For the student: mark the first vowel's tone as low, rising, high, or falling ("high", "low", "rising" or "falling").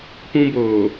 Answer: high